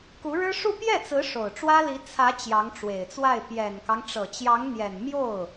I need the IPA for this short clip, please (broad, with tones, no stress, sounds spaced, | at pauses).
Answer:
k u˧˥ ɻ ɻ̩˥ ʂ u˥˧ p j ɛ˥˩ t͡s ɹ̩˧˥ ʂ o˨˩ ʊ̯ ʈ͡ʂ w ä˥ l i˧˥ t͡sʰ ä˧˥ t͡ɕ j ɑ˧˥ ŋ ʈ͡ʂ w e˨˩ ɪ̯ t͡s w a˥˩ ɪ̯ p j ɛ˨˩ n k ɑ˦ ŋ ʈ͡ʂ ɤ˨˩ t͡ɕ j ɑ˧˥ ŋ n̪ j ɛ˨˩ n m j o˥˩ ʊ̯